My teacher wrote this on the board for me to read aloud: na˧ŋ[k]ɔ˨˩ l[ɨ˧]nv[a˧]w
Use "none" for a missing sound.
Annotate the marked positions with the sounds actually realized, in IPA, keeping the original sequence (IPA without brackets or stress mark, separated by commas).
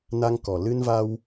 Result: k, ɨ˧, a˧